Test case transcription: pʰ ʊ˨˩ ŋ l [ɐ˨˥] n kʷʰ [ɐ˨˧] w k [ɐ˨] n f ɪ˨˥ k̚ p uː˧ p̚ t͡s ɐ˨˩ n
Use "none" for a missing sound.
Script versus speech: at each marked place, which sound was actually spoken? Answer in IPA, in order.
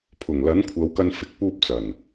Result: ɐ˨˥, ɐ˨˧, ɐ˧

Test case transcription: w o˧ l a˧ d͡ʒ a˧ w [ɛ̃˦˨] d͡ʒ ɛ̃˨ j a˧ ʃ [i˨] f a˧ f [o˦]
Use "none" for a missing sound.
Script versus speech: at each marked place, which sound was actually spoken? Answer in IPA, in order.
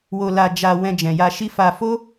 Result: ɛ̃˧, i˦, o˦

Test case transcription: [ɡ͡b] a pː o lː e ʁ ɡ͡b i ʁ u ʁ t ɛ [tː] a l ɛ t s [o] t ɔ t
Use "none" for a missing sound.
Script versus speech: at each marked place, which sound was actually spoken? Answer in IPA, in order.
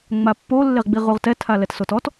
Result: ŋ͡m, tʰ, o

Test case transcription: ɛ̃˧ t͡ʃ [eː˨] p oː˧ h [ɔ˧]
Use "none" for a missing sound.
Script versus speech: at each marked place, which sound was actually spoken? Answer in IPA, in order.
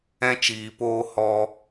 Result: iː˨, ɔ˧

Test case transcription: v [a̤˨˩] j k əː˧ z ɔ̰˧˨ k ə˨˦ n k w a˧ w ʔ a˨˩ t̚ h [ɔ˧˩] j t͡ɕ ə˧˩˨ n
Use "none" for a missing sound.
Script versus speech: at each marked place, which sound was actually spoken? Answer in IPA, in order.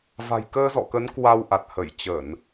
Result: a̤˨˩, ə˧˩

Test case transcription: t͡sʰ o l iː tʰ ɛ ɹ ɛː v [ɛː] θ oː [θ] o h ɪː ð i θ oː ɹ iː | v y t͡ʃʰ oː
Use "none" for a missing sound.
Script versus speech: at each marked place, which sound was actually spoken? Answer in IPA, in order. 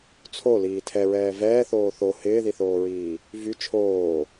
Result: ɛː, θ

